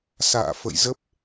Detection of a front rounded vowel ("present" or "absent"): absent